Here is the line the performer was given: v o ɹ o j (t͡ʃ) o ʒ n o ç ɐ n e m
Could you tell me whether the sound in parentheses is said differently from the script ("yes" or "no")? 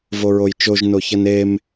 no